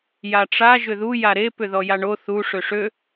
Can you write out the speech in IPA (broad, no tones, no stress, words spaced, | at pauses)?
jaʈ͡ʂa ʒʏðu jaɾe pʏðɔjaɳo θu ʂøʂø